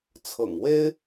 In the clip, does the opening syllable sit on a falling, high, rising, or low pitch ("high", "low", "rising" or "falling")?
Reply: low